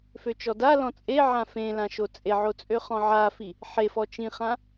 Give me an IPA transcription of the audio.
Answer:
f ø t͡ʃ ɔ d a l ɔ̃ t͡sʼ e ʕ ã f ẽ l ã ʃ o t͡sʼ e ʕ o t͡sʼ ø χ ɔ̃ ʕ a f i | ħ e f ɔ t͡ʃ ĩ χ ã

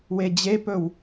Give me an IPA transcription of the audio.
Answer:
w e d͡ʑ e p ɵ w

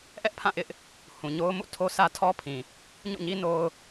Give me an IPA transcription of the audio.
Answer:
ʔ ɛ˦ ʔ pʰ ã˦˨ ʔ ɪ˦ ʔ | h ũ˨ ɲ o˦ ʊ̯ m ṵ˦˨ tʰ o˦ sʰ ä˦ tʰ ɔ˦ pʰ ĩ˨ | ɲ ṵ˦˨ ɲ i˦ n o˦ ʊ̯

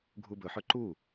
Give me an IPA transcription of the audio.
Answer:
ɡʱ u b ɵ ħ ɵ ǃ u

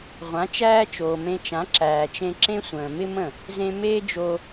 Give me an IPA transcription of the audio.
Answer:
ʁʷ ã˩˥ t͡ʃ æː˥ t͡ʃ oː˩ m ẽ˧ t͡ʃ ã˩˥ ǁ æː˩ t͡ʃ ẽ˧ ǁ ẽ˥ sʷ ə̃ː˩ m ɪ˥ m ə̃˥˩ | z ẽ˧ m eː˥ d͡ʒ o˧

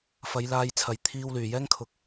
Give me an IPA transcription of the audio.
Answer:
f ɐ˨˧ j l aː˧ j t͡sʰ ɐ˨ j t̪ʰ iː˧ w l yː˨˩ j ɛː˥ ŋ kʰ ʊ˨ k̚

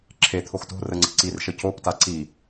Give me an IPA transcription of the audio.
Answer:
ǁʰ e t̪ʰ o x t o̤ r ə ŋ͡ǀ ə̤ ǀ i r ʃ ə c o p t a ǀ i

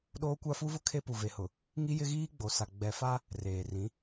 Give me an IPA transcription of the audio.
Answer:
ɗ oː˦ kʷ a˦ f u˦ v ʊ˦ kʰ e˦ p u˨ v e˨ h ʊ˨ | ŋ i˦ j ɪ˦ ɣ iː˦ ɡ͡b o˨ s a˨ ɡ͡b ɛ˨ f a˦ | r eː˨ r ĩ˨˦

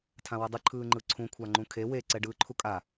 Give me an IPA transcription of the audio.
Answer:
tʰ ã w ʌ dˤ ɯ ǃʰ ɯː ŋ͡ǃ ɯ ǀʰ ũ kʷʰ a ŋ͡ǃ ũ kʰ e w e ǀ ɛ ɖ ɯː ǃʰ u kʼ a

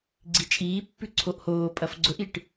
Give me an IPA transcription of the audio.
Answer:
ɡ͡ǀ i t͡ʃʼ iː pː ʉ ǀʰ o ʔ h oː pʼ ɐ f ɡ͡ǀ ɵ ʔ i ʈ

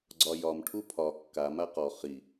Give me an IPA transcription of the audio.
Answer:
ɡ͡ǀ ɒ j ɒ m ʈʰ u pʰ ɒ kː a m a q ɔ χ i

